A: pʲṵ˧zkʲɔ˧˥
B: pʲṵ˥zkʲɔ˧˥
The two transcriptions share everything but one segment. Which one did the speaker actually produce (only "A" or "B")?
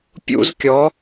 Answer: B